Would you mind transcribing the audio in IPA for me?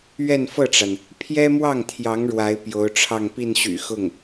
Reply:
ɥɛ˥˧nfɤ˥˩ʈ͡ʂa˩n | pʰjɛ˥mwɑ˥˩ŋt̪ʰjɑ˧˥ŋ ɻwa˧˥ɪ̯pjo˧˥ʊ̯ʈ͡ʂʰɑ˥˧ŋ pi˥˩nɕy̰˨˩xʊ˥˩ŋ

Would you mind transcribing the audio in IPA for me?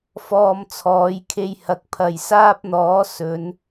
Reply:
fɔː˧mt͡sʰɔː˨˧jkʰe˧jhɐ˨k̚ pʰɐ˨jsaː˥p̚n̪ɔː˨˥ sɵ˨˧n

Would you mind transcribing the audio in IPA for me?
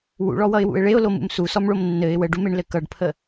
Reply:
wṵɭɔwʌɪ̯wṵɪ̯ ɭeʊ̯lomṵm susɔmɭom nːɘɪ̯ wəɖumeɳlɘ kʌɖpʰə

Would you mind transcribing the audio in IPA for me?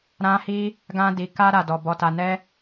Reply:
ɾã˦ hi˦ | ɡã˦di˧ ka˦ɾa˧dɔ˧ bɔ˧ta˧nɛ˦

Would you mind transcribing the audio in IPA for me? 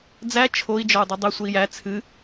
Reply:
d͡zæ t͡ʃʰoi̯ d͡ʒɒu̯dˤɨdˤɨ sʷəi̯jæ t͡sʰɨ

